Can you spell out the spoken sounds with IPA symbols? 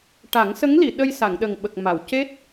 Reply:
ʈa˨˩˦ŋsə˧˥ŋli˨˩˨ ɗə˧jsa˨˩˨ŋɗə˨˩ŋɓə˨˩k̚ ma˨˩˨wce˦˥t̚

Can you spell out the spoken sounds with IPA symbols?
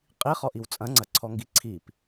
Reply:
qʼiχɔʔiw t͡sʼɐ̃ŋ͡ǀɐǀʰɔŋɡi ǀʰip

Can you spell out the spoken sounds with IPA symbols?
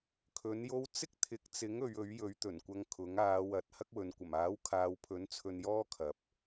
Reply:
kʰɵ˨˥njo˥w t͡sɪ˥k̚t̪ʰɪ˨˥k̚t͡sɪ˨˥ŋ ɵ˨˧ɥɵ˨˥ɥjɵ˨˥ɥt̪ɵ˨˩n kʷɐ˧ŋkʰʊ˨˥ŋ aː˨˧wɐ˨˥t̚ hɐ˥k̚wɵ˨n kʷɐ˨˩maː˨˥wkʰaː˨wpʰɵ˨˥n t͡sʰɵ˧njɔː˥ kʰɐ˨˥p̚

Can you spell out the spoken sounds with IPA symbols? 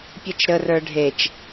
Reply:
pʲɨt͡ʃɾə rə˞ɖʱet͡ʃ

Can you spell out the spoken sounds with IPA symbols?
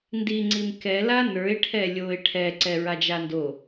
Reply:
ndiŋ͡ǀim kɛ lanə˞ɪ̯ ʈʰɛlʲoɪ̯ ʈʰɛ ǀɛɹad͡ʒando

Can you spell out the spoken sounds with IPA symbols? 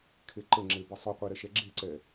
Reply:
kʰeǃəŋ͡ǁe bəsˤɵqʷe ɾɛʃɛɡ͡ǁeǀɛ

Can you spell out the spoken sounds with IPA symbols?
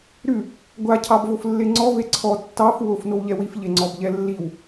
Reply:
ɾʉ | ɡʷa cʰɑbvoflːeŋ͡ǀɔ veǀʰɔ tːɑf wof nowʎɛwif ʎeŋ͡ǀɔbʎɛlːiw

